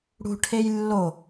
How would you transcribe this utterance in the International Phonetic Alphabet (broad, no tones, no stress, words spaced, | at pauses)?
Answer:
ɽṳ ʈʰejlːo